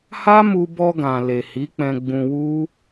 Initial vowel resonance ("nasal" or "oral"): oral